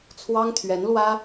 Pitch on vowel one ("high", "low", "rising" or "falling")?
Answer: high